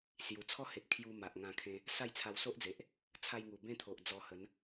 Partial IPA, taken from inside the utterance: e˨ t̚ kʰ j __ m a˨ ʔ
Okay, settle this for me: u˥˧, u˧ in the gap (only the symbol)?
u˧